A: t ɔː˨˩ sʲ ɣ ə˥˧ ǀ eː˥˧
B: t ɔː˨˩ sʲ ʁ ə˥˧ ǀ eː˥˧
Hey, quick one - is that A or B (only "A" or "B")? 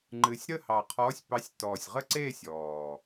B